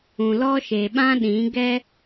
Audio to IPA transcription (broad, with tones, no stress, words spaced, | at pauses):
ũ˨lɔ˦ʃe˨ ɓã˦ɗĩ˨˦ ɡɛ˦